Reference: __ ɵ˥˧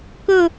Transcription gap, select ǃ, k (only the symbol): k